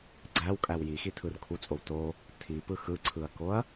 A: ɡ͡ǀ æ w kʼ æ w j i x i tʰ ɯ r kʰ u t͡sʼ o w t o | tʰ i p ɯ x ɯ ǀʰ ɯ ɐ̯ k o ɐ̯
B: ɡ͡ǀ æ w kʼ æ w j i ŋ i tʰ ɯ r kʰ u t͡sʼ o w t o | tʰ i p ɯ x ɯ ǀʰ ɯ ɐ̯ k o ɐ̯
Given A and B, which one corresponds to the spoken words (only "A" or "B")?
A